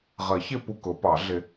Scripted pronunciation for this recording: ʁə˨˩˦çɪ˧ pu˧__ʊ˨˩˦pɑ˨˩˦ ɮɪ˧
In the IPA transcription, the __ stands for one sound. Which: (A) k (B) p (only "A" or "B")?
A